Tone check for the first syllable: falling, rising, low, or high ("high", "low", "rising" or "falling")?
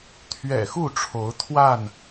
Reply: low